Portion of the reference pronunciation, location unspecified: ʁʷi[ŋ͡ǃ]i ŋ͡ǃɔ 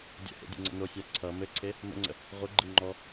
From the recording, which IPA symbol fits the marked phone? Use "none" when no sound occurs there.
ɡ͡ǃ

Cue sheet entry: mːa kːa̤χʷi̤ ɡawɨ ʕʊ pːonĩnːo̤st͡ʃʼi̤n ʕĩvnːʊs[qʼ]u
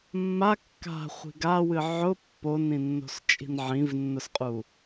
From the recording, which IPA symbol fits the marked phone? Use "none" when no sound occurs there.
qʼ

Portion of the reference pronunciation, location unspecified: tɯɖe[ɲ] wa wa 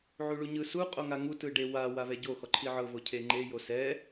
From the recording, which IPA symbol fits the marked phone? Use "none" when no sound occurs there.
none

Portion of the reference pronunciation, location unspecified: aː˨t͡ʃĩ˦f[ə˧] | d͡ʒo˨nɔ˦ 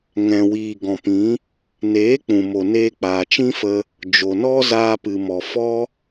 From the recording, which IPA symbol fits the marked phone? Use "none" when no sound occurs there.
ə˧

